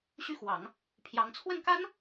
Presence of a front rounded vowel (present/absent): present